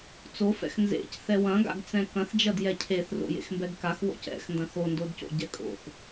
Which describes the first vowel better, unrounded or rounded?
rounded